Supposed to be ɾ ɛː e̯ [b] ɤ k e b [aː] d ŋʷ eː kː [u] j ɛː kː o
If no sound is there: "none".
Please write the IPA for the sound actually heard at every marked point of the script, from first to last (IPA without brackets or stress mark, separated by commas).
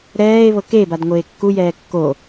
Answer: β, a, u